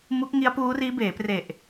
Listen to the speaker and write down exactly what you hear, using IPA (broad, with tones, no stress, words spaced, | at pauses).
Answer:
mu˦˥k̚ŋi˦˥a̯puː˦˥riː˦˥ beː˩˦pre˨˩ʔ